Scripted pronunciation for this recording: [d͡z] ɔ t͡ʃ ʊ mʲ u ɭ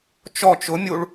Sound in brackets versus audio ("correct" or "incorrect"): incorrect